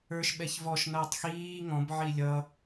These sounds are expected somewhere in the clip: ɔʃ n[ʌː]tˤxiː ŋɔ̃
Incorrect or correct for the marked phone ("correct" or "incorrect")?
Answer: correct